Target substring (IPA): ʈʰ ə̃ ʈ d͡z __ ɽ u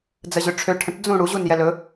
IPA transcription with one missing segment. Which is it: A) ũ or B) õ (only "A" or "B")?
A